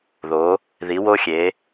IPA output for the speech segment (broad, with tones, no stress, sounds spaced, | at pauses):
ð o˩˧ | ð i˩˧ w o˧ xʲ e˩˧